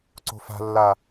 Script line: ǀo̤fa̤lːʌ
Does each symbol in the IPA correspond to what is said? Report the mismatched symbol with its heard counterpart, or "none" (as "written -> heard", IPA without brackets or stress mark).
ʌ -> a